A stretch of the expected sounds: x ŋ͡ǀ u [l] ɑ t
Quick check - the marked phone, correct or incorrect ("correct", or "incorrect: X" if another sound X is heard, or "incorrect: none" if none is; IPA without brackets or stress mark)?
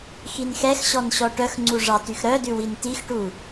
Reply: incorrect: ʐ